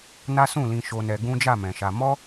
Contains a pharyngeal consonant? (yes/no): no